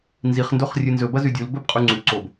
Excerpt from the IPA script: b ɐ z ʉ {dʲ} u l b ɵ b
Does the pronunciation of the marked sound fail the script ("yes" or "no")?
no